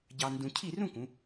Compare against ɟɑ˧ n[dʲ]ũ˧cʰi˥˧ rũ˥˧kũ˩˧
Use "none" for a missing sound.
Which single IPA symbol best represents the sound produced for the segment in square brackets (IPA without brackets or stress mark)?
d